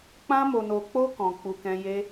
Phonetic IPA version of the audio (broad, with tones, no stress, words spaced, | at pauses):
k͡pã˦mo˧no˧k͡po˦ kɔ̃˧k͡pu˧kɛ̃˦ je˦